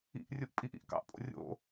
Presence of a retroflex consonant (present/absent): absent